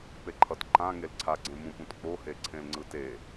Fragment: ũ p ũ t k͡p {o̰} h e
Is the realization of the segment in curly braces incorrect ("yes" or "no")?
yes